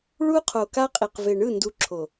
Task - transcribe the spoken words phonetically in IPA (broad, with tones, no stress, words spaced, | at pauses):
ɭu˦qʰo˨ka˦qʼi˨q ve˨ɳɯ˦˨ ndu˦ ǁʰo˨